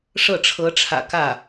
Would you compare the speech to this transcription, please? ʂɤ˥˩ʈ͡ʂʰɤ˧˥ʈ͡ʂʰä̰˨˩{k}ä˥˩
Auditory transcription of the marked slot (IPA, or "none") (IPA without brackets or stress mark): k